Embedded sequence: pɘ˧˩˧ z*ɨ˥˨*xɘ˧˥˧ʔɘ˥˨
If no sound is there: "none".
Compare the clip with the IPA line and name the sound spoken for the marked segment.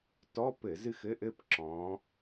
ɨ˥˨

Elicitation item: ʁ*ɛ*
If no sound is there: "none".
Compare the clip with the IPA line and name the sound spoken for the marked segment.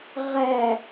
æ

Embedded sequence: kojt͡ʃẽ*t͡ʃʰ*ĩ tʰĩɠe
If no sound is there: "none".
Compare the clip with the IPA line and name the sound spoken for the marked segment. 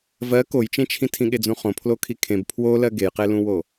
t͡ʃʰ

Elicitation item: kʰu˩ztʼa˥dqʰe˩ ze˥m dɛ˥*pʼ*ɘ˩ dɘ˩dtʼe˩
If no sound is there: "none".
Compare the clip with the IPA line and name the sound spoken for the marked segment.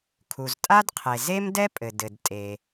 pʼ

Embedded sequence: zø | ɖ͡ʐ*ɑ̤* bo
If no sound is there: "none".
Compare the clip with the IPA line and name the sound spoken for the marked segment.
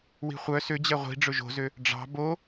ɑ̤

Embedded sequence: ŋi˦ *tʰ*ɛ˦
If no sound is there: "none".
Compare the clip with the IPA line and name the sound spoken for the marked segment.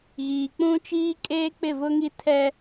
tʰ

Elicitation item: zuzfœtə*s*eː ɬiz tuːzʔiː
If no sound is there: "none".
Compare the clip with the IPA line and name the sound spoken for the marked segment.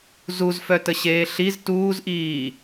ɕ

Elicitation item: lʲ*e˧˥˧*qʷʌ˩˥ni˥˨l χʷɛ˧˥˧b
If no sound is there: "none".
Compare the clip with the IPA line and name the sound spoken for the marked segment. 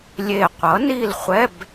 e˧˩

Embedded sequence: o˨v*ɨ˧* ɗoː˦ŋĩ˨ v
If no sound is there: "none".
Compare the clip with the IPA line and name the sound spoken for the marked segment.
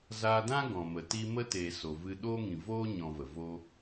ɨ˧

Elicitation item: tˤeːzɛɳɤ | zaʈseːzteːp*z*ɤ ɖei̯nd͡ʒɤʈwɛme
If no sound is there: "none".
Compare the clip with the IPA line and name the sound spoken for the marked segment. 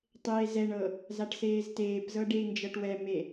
z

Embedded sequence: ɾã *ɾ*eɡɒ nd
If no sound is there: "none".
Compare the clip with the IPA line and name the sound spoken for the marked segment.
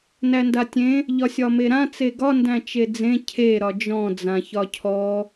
t͡s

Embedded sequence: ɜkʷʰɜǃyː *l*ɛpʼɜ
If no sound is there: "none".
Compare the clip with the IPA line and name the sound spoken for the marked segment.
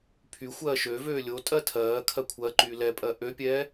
l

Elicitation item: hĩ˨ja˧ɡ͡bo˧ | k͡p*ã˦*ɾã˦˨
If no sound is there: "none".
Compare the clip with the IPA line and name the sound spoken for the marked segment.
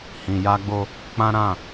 ã˦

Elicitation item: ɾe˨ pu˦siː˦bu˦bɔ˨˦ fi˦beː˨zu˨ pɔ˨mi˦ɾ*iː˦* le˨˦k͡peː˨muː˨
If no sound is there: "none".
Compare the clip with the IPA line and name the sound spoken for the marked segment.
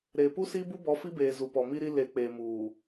i˦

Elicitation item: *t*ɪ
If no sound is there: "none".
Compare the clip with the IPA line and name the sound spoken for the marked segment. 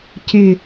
c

